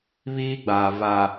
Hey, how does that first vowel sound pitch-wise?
high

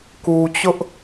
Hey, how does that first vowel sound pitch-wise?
low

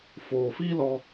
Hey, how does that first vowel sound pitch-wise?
low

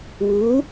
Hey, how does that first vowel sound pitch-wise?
rising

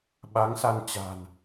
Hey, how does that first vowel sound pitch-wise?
rising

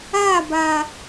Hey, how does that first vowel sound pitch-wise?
falling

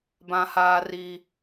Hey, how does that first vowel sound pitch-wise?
high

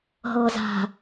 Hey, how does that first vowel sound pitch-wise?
low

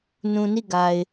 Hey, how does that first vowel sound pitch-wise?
low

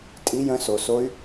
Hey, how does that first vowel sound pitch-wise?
rising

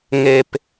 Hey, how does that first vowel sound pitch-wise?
low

